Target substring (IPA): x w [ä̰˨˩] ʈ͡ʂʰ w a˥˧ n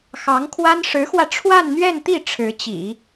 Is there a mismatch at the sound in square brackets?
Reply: yes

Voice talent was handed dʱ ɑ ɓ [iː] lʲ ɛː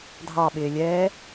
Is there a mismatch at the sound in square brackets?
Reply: yes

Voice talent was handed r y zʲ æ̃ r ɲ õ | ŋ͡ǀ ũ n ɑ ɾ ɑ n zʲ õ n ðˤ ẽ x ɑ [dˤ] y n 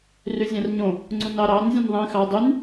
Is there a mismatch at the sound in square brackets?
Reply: no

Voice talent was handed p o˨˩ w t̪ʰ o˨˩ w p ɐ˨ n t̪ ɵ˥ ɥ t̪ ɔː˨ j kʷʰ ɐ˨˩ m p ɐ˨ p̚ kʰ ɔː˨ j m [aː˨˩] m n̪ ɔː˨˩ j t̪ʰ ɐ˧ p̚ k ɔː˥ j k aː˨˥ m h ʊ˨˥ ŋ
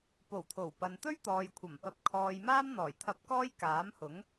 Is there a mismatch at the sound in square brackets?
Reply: yes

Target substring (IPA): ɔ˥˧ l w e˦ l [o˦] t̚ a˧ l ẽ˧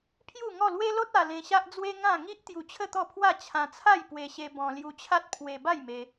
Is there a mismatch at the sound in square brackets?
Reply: no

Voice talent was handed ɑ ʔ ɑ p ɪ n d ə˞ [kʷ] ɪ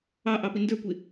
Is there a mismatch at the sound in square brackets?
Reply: no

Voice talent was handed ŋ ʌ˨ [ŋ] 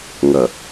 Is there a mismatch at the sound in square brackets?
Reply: yes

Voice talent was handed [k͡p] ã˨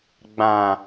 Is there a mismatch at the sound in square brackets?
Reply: yes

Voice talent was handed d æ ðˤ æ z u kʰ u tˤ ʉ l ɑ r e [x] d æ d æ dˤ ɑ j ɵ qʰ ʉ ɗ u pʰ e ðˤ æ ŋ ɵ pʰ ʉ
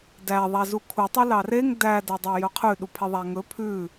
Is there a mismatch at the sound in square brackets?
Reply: yes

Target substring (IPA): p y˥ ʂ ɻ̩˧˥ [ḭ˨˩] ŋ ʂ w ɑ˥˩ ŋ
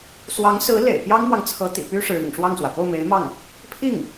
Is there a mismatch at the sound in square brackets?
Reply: no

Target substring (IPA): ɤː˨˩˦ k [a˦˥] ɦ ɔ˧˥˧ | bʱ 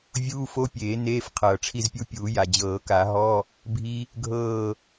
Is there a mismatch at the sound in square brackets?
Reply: yes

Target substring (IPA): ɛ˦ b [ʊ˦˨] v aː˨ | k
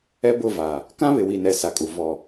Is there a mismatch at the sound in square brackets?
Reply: no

